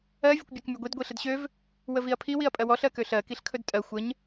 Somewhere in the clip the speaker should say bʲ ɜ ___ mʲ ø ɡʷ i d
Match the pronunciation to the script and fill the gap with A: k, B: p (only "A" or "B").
A